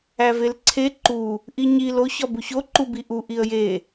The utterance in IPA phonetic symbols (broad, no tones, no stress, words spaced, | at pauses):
ævelǀʰe ǃu | ʔiɲil oç ɒbuço ǃubiʔu ʔiə̯je